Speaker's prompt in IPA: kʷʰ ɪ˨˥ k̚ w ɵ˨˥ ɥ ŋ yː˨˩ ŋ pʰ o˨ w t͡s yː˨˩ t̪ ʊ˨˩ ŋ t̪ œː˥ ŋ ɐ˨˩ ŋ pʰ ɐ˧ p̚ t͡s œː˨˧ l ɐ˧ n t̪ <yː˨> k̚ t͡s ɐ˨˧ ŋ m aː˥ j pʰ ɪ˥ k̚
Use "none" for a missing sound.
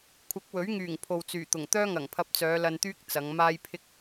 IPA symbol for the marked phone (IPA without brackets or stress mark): yː˥